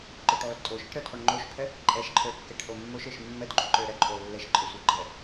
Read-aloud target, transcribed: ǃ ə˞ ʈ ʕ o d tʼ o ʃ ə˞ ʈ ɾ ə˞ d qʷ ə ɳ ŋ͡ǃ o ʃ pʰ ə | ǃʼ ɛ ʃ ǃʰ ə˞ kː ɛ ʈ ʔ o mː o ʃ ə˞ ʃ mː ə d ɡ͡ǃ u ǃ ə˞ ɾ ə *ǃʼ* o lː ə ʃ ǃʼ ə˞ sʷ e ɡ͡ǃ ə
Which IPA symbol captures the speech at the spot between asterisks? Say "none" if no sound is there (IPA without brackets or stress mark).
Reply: ǃʼ